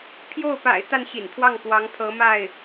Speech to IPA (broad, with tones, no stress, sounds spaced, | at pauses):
pʰ j o˥˩ ʊ̯ p a̰˨˩ ɪ̯ t̪ a˥˩ n ɕ ḭ˨˩ n pʰ w ɑ˥˩ ŋ k w ɑ˧˥ ŋ pʰ ɤ˧˥ m a˥˩ ɪ̯